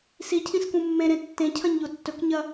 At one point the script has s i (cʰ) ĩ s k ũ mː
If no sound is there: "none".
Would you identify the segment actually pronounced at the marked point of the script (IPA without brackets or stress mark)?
cʰ